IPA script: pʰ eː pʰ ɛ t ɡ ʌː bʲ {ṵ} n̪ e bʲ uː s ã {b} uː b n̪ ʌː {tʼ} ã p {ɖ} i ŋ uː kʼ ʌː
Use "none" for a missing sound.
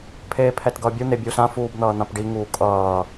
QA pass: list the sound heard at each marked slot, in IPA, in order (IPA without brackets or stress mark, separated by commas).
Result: u, f, n̪, ɖ